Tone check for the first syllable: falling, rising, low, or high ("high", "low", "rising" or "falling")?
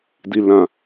low